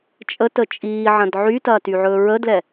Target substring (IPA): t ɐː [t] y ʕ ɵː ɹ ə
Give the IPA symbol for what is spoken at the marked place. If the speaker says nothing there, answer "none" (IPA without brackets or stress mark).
t